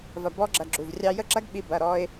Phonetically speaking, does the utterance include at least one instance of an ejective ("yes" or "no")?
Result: no